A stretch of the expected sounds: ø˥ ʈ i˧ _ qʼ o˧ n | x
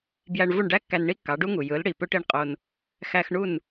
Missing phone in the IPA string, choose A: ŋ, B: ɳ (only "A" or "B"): B